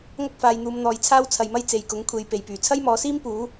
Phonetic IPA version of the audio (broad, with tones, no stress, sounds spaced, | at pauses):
ŋ ɐ˥ k̚ f aː˨˧ j n̪ uː˨˧ m n̪ ɔː˨˧ j t͡sʰ aː˥ w t͡sʰ ɐ˨ j m ɐ˥ j t͡s e˨ j k ʊ˨˥ ŋ kʷʰ e˨˧ j p e˨˩ j p yː˨˩ t͡sʰ ɐ˥ j m ɔː˨˧ s iː˥ m p uː˨˥